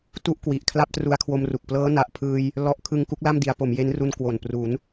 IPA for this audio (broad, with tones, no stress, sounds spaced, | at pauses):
t u˥˩ ʔ k w i˨˩ ʔ kʰ l a˥˩ p̚ t r u˧ a̯ kʰ w o˧ m r u˨˩ k̚ p l ɤː˦˥ n a˨˩ ʔ pʰ ɯː˧ j | l ɔ˦˥ ʔ kʰ ɯ˧ ŋ k u˦˥ k̚ l a˥˩ m d i˩˦ a̯ p o˩˦ m j e˦˥ n r u˧ n k w o˨˩ n p r u˩˦ n